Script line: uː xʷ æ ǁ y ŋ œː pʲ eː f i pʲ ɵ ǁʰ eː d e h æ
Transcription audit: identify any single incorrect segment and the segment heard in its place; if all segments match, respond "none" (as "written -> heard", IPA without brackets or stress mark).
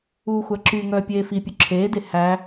none